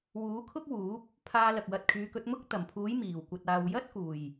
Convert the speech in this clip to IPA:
w uː˨˥ kʰ ʊ˥ k̚ w uː˨˥ p̚ | pʰ aː˧ l ɐ˨ k̚ w ɐ˧ t̚ kʰ yː˨˧ k ɵ˨˥ t̚ m ʊ˥ k̚ t̪ ɐ˨˩ m pʰ uː˨˥ j m iː˨˩ w kʷ ɐ˨ t̚ aː˨ w j ɐ˥ t̚ k uː˨˩ j

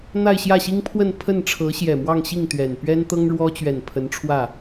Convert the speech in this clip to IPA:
n̪ a˥˧ ɪ̯ ɕ j ä˥˩ ɕ i˥ ŋ pʰ w ə˥˧ n pʰ ə˥˩ n ʈ͡ʂʰ ɤ˧˥ ɕ j ɛ˨˩ m w ɑ˥˧ ŋ ɕ i˥˩ ŋ t̪ ɥ ɛ˨˩ n p ɥ ɛ˥ n t̪ ɤ˥ ŋ ɻ w ɔ˥ t͡ɕ ɥ ɛ˨˩ n pʰ ə˧˥ n ʈ͡ʂʰ w ä˥˩

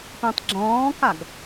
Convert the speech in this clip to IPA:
p ĩ tˤ ɡ͡ǁ ɔ̃ː k a ɡ

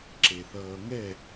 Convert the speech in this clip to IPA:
ǁ e θ ʌː ŋ ɛ

